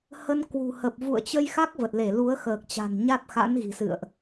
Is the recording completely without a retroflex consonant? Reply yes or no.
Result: yes